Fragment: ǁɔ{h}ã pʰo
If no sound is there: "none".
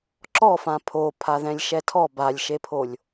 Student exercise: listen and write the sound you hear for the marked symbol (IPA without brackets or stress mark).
f